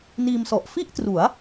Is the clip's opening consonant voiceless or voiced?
voiced